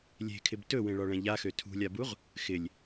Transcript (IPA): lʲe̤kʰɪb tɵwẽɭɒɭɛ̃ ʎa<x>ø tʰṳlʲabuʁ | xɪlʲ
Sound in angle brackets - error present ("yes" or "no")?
no